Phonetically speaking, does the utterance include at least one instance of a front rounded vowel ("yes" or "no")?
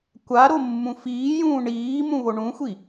no